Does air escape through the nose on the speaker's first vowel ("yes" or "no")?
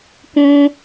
yes